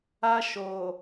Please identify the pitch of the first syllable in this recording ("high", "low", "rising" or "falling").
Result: high